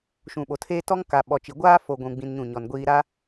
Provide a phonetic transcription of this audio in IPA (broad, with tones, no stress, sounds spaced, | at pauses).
ʃ ũ˨ ɓ o˨ tʰ eː˦ t ɔ˦ ŋ k a˨ ɓ ɔ˨ t͡ʃ i˨ ɡʷ aː˦ f o˨ ɡʷ ũ˨ ɡ͡b ĩ˦ n ɲ ũ˦˨ ɲ ɔ˨ n ɡʷ iː˦ ɾ a˦